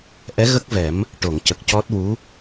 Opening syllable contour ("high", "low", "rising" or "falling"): rising